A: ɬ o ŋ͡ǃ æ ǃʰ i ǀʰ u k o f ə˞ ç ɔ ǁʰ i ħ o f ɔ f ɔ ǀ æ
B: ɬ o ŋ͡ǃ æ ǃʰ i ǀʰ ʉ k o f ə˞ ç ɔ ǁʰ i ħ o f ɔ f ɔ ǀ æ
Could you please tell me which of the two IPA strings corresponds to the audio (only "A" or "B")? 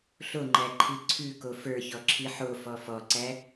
B